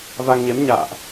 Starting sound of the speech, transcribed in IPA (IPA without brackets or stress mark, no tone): v